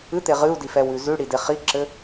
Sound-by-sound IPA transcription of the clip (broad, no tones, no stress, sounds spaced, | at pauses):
ɨ t̪ e ʁ ɨ u̯ d i f ɛ w ʉ z ʉ ɽ i d e χ i ǁ ɘ